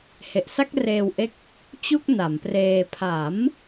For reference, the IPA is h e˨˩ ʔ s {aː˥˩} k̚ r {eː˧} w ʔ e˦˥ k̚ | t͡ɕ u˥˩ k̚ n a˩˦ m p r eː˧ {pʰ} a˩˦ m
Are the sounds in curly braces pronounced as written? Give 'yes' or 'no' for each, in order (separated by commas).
no, yes, yes